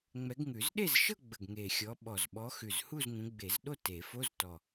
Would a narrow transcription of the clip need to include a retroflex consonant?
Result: no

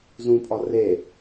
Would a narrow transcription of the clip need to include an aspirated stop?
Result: no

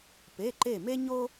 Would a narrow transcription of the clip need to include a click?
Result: yes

